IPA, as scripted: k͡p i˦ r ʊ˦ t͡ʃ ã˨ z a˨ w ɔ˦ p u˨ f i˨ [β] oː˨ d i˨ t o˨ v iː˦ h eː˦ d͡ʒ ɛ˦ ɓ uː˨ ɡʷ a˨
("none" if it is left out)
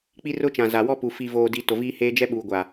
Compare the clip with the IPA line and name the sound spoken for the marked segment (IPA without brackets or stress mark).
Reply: v